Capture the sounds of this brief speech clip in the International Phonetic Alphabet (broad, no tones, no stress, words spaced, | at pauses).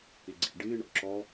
eɡ͡ǀḛ ɖɪː ɳɔ̰ǁɔ